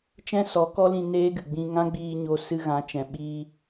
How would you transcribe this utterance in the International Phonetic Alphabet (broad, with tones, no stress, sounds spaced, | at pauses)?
t͡ʃ ɛ̃˦ s ɔ˨˦ k ɔ˦ l ĩ˧ n eː˦ ɡ ɨ˨ ɡ͡b ĩ˧ ŋ ã˦ ɡ͡b iː˧ ɲ o˧ s ɨ˧ ɣ ã˨˦ t͡ʃ ɛ̃˨ ɓ iː˧